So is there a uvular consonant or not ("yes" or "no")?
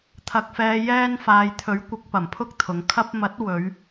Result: no